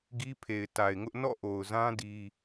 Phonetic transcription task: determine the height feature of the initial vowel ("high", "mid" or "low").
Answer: high